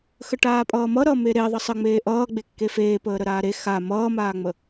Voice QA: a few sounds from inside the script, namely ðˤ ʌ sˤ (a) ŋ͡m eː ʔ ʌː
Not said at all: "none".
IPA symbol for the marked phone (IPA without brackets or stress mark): ə